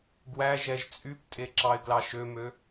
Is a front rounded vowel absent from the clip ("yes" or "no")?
no